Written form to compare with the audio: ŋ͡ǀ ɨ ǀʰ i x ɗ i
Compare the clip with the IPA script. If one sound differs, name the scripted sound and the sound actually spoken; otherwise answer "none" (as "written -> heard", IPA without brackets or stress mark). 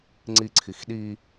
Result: ɨ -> i